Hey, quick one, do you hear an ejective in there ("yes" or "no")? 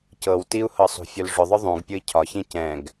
no